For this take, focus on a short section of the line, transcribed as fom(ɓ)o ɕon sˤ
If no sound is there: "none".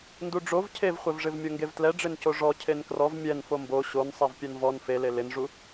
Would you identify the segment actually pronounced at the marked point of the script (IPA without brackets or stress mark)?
b